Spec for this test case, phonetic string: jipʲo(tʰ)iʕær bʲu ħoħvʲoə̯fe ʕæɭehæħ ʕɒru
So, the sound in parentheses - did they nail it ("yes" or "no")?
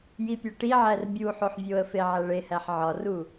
no